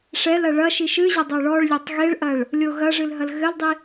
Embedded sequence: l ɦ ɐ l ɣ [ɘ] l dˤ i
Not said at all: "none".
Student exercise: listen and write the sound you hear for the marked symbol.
ɘ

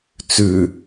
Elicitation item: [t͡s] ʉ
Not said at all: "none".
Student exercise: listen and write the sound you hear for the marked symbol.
t͡s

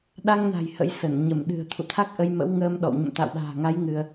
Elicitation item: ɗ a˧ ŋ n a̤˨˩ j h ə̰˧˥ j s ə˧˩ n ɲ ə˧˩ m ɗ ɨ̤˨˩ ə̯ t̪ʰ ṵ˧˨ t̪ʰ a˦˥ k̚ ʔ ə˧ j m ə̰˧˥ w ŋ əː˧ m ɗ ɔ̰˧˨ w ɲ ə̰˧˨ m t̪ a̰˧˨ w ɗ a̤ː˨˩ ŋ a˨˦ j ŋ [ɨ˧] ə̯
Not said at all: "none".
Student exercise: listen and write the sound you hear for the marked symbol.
ɨ˧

